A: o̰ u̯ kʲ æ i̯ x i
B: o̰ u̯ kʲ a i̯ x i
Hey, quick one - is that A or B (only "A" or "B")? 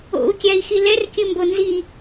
B